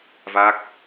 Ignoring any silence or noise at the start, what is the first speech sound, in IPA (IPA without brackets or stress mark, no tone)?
v